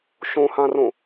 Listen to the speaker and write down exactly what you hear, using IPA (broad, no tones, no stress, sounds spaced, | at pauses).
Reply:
ʃ õ h ã r õ